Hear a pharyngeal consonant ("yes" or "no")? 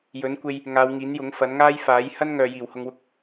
no